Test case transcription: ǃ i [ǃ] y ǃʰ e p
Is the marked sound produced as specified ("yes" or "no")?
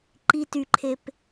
no